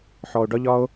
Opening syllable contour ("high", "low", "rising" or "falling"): low